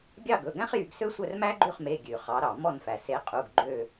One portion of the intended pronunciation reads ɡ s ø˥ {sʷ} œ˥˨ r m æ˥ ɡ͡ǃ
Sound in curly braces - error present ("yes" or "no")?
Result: no